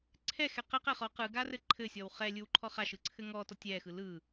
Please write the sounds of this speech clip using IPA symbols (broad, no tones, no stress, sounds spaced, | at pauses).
ǀʰ ɛ x ɛ q ɘ q ɛ χ ɔ q ɯ ɡ a r ɘ ǃʰ ɘ sʲ ɔ w χ ɛ lʲ ɯ w ǃʰ ɔ χ a ʃ ɯ ǀʰ ɘ ŋ ɔ t ɔ tʲ ɛ x ɯ l ɯ